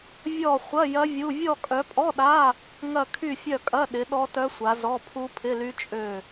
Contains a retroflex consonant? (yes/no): no